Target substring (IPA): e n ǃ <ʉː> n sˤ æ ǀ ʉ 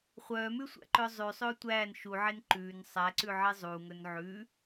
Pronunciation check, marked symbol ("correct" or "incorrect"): correct